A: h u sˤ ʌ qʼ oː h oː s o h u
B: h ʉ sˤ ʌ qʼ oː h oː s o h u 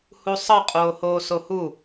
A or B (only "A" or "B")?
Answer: A